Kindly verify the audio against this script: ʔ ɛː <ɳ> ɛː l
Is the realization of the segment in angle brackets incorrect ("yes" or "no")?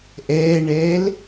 no